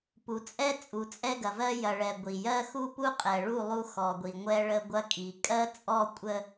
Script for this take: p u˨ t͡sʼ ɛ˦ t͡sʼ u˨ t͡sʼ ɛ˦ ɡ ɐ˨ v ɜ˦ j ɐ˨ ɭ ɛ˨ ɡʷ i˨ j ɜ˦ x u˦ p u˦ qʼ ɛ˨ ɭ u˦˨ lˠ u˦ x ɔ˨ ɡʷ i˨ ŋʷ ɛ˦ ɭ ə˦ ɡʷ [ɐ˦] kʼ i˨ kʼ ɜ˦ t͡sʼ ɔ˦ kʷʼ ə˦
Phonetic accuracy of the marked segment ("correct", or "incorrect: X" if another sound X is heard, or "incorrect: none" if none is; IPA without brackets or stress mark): correct